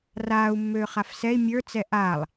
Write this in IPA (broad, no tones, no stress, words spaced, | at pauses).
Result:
raːu̯ mːøːχafsɛi̯ mʲə˞ t͡sɛʔaːlˠ